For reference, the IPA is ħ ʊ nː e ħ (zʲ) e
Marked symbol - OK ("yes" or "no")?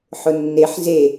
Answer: no